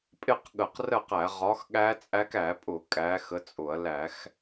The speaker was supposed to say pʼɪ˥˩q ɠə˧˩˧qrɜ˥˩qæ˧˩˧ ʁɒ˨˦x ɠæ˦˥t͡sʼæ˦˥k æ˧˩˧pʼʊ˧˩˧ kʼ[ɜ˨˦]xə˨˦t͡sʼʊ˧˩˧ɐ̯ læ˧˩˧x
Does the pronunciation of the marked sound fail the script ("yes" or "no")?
yes